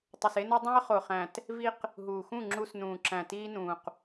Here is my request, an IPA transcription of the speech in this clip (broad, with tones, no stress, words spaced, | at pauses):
tˤu˨se˦no˦ dˤẽ˦ə̯ χo˨χæ̃˨t | vi˦q | ɦuː˨xũ˦˨ ŋ͡ǁu˦s nũː˨ǁæ̃˨ tiː˦nũː˨q